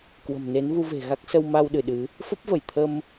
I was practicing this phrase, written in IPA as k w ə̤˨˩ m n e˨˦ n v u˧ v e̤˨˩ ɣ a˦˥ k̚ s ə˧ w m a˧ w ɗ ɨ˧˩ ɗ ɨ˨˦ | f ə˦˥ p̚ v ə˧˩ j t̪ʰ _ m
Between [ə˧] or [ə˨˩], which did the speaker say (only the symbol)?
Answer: ə˧